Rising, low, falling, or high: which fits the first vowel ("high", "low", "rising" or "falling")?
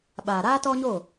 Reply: low